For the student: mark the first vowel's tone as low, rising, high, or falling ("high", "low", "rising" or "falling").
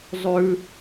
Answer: low